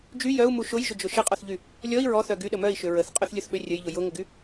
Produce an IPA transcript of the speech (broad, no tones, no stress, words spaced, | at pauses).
d͡ʒy jœu̯mu ʃʊjʒʏd͡ʒʊ ʃəqʼɔθʎy | lʲɔi̯ ɹɔθœ ɡyɗə mœi̯ʃʏ ɹəθqʼœθlʲʊθɓø rʲəjʎʊ jʊŋʊɡy